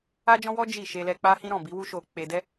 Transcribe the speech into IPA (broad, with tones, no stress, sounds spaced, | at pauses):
a˦ d͡ʒ ɔ̃˦ w ɔ˦ d͡ʒ i˦˨ ʃ e˧ l ɛ˧ k͡p a˦ h ĩ˦ ɾ ɔ̃˦˨ b i˨˦ w u˦ ʃ o˧ k͡p e˧ d ɛ˦